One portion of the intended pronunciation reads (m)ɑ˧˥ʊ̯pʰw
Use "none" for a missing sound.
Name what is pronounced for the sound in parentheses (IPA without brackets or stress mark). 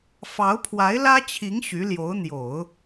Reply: f